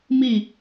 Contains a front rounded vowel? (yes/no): no